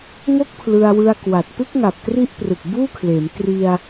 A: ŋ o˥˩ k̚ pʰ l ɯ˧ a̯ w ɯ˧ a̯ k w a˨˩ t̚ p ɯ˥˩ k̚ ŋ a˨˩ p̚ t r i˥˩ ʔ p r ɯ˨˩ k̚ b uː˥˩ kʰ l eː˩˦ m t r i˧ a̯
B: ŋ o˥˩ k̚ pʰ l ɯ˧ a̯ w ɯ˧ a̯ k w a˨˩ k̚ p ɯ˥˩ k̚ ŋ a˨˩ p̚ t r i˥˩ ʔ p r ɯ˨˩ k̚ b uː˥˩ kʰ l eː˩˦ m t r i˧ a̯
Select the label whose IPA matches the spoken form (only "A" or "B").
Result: A